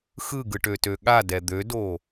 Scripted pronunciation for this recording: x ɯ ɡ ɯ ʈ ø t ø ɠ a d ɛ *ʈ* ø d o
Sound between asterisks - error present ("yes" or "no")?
yes